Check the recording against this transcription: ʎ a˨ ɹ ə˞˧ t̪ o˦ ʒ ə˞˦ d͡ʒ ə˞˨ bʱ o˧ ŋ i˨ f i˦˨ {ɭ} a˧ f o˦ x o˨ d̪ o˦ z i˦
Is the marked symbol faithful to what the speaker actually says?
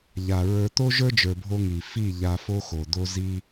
no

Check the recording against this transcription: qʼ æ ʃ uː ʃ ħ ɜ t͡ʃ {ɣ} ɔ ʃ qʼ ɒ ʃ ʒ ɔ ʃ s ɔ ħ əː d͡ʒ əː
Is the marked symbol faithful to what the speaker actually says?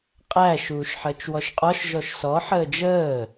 no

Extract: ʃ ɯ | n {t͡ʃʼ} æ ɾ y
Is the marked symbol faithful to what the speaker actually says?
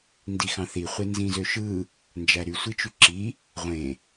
no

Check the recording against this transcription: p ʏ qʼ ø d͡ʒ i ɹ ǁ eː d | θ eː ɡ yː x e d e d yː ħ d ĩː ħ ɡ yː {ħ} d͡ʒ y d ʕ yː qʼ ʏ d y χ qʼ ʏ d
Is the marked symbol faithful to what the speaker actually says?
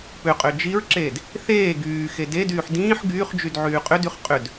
no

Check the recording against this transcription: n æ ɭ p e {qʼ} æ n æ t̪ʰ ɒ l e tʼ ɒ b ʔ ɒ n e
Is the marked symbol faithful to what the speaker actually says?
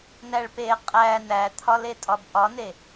yes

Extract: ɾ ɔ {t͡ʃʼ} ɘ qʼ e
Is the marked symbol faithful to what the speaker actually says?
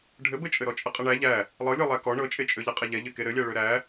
yes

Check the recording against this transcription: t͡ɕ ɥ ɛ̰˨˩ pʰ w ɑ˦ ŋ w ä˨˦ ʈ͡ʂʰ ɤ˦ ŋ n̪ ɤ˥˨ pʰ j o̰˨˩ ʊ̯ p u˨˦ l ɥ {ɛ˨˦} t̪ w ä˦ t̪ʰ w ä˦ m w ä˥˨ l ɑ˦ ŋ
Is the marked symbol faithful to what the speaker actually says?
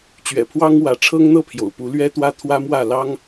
no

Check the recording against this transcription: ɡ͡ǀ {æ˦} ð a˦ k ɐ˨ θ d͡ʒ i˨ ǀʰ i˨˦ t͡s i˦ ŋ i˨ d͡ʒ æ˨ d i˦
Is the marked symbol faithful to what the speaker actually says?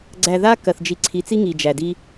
no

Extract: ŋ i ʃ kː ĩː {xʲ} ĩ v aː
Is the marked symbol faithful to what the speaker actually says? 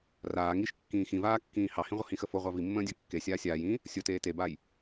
no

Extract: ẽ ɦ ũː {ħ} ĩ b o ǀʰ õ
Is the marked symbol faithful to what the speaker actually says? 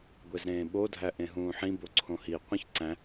yes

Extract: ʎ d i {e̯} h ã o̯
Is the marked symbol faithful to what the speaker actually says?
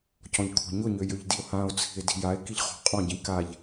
no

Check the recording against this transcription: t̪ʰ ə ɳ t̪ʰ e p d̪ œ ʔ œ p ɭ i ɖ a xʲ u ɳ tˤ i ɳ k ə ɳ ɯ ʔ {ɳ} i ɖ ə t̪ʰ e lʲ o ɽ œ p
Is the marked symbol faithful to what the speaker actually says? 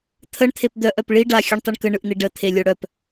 no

